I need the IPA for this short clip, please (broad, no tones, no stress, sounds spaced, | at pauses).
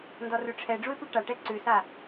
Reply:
n d ɔ r ʉ ʈ͡ʂʰ ɛ ɖ͡ʐ u ɪ̯ p ʉ ʈ a ʈ ɛ ǀ ʉ s a